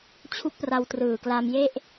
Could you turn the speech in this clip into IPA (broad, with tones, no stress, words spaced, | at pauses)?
t͡ɕʰu˦˥k̚pra˧wtrɯː˨˩kla˧m je˥˩ʔ